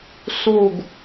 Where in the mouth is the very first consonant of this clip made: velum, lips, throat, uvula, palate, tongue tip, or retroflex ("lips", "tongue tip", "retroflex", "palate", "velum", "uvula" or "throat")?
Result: tongue tip